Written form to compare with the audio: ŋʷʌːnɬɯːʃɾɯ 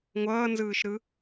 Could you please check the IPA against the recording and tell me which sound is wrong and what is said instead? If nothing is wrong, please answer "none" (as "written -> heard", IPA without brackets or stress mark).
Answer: ɬ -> z